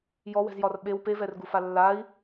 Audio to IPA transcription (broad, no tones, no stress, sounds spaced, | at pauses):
j ɔ w ɛ̤ z j ɒ r ɓ e w p e v ɛ r ɡ u f a lː a i̯